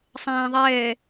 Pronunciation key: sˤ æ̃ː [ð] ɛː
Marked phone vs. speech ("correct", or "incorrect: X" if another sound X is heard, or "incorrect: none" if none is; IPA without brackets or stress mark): incorrect: ðˤ